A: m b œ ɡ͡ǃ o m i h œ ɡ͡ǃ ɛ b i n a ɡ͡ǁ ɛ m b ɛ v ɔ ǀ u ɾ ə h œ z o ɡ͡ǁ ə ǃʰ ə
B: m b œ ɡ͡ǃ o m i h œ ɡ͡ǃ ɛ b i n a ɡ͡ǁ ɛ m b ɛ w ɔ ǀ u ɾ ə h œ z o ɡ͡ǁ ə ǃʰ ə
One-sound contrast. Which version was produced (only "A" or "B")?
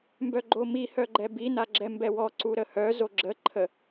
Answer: B